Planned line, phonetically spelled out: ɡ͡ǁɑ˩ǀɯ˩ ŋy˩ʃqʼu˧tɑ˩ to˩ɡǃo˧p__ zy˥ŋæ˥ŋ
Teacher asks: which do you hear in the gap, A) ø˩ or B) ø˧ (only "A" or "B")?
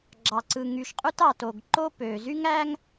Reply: A